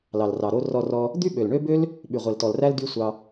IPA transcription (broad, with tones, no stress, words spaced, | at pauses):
lɑ˨lrɑ˨ɾo˦ rɔ˧rɔ˧ | d̪y˦ɓø˨lɳø˦bø˦l | ɓy˨ʁʷe˨ltɔ˨lræ˦l dy˦sʷɑ˧